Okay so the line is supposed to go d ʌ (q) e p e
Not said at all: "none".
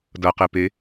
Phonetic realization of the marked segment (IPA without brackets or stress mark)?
q